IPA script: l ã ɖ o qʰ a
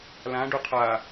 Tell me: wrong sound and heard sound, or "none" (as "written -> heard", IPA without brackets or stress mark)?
none